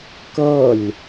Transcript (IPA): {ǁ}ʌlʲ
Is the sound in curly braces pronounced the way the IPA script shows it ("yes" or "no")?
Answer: no